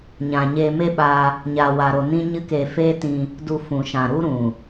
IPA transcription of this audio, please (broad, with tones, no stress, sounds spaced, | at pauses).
ɲ ã˨ ɲ eː˧ m e˦ ɓ aː˧ | ɲ aː˨ w aː˨ ɾ o˨ n ĩ˦ ɲ ɨ˦ k e˧ f eː˦ t ĩ˧ | d u˧ f ũ˨ ʃ ã˨ ɾ u˦ ɾ ũ˨